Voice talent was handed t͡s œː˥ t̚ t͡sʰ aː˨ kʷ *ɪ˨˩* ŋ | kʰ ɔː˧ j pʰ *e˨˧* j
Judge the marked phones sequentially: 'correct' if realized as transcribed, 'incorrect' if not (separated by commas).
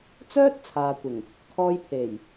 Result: correct, incorrect